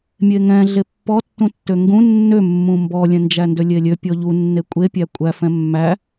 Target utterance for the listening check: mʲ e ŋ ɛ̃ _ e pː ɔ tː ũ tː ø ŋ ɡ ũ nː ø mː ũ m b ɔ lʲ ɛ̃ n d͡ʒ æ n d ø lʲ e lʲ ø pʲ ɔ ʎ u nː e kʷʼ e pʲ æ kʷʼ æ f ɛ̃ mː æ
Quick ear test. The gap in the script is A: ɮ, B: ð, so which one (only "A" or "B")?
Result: A